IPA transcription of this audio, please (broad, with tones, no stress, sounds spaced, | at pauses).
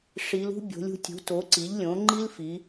ʂ i˩˧ l ṳ˥ bʲ o̤˩˧ lʲ ṳ˩˧ tʲ ṳ˩˧ t o˩˧ ǀ i˩˧ ʎ lʲ õ˩˧ ŋ͡ǃ i˥ l f i˩˧